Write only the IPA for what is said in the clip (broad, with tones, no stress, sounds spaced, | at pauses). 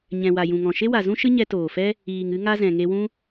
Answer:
ɲ ɛ̃˨ w a˨ j ũ˨ ŋ ɔ̃˨ ʃ e˦ w a˨ z ũ˦ ʃ ɨ˦ ɲ ɛ˧ t oː˨ f ɛ˦ | iː˨ ŋ ɨ˦ ŋ a˦ z ɛ̃˨ ŋ e˧ w ũ˦